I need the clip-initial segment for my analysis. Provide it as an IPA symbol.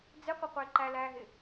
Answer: d͡z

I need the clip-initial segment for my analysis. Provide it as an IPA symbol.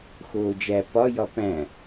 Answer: x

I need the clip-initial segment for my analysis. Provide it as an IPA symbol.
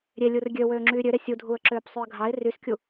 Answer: ɾʲ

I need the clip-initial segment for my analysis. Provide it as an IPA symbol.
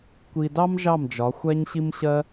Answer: kʷ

